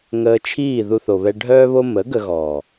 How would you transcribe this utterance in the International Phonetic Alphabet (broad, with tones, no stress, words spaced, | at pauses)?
ŋəː˧t͡ʃʰiː˦˨ ðu˧θo˨βɛ˧ ɖʱœː˦βo˦ mə˨˦ ɡə˧ɣɔ˨